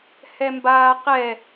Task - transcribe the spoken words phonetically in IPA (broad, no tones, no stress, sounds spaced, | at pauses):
h ɛ m b aː q ɛ